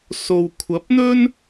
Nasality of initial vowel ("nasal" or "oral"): oral